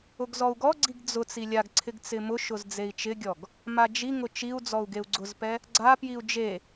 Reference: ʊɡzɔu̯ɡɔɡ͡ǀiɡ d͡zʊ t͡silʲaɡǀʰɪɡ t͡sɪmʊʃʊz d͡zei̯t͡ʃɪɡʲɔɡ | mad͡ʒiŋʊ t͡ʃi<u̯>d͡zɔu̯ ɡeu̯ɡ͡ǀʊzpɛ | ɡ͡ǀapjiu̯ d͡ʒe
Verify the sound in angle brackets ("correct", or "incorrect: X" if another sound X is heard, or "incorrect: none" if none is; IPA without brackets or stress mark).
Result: correct